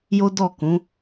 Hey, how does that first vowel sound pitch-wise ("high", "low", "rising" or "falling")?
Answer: high